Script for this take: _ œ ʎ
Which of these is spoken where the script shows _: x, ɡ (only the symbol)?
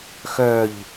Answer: x